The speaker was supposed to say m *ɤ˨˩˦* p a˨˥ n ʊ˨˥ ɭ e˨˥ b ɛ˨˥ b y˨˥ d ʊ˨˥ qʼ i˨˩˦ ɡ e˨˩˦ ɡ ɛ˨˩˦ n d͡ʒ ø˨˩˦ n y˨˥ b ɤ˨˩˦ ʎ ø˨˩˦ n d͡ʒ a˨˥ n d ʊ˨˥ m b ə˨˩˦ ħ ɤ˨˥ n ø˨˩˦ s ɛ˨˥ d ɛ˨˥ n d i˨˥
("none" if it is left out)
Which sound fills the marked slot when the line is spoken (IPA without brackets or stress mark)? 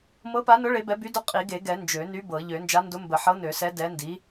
ɤ˨˥